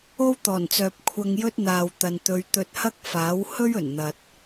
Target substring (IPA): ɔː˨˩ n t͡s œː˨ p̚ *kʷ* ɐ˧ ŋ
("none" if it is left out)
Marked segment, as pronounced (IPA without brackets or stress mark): kʷʰ